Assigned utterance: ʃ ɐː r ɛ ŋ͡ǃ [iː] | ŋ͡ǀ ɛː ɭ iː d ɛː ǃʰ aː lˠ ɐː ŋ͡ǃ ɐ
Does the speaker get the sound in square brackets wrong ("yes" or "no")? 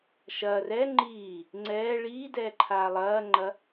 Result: no